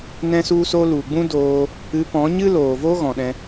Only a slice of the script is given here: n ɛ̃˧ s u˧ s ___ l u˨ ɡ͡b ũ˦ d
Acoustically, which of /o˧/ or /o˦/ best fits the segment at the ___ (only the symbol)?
o˧